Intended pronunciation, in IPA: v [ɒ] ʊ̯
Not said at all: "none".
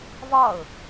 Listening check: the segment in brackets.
ɒ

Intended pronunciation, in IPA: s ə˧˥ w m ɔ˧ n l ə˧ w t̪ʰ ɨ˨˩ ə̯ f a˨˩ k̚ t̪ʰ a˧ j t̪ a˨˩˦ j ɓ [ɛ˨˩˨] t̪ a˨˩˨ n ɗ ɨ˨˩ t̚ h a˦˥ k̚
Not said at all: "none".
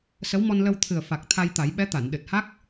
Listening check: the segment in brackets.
ɛ˧˥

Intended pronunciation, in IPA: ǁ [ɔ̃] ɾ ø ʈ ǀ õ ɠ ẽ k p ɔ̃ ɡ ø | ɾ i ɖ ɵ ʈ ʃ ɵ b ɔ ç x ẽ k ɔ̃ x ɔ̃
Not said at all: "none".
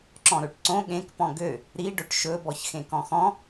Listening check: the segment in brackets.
ɔ̃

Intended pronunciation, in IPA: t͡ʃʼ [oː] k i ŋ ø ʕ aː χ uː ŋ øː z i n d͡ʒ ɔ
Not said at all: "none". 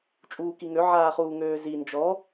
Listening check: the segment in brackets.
uː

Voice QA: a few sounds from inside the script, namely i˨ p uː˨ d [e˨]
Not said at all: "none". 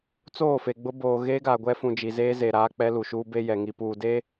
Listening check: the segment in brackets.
e˦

